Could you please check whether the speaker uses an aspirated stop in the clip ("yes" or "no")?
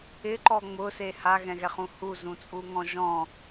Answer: no